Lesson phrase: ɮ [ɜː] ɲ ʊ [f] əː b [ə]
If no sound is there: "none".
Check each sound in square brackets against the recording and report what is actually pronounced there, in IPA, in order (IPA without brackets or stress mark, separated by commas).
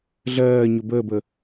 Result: ɜː, b, ə